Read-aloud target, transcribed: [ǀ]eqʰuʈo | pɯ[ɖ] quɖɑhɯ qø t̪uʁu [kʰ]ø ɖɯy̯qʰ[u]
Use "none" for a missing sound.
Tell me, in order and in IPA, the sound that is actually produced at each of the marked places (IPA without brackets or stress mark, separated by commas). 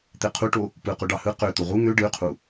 t̪, none, ŋ, u